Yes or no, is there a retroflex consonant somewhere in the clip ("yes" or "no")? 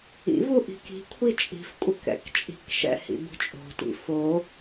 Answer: no